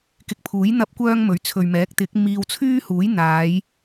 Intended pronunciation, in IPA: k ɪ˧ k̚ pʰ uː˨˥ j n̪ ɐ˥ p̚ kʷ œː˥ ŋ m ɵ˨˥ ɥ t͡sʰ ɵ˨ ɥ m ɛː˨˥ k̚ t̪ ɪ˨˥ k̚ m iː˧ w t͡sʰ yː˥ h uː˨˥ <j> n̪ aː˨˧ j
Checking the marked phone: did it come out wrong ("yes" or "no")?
no